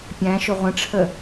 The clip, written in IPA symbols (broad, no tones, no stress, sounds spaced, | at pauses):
pʲ æ̃ ʃ ʊ ʁʷ ə̃ ʈ͡ʂʰ ə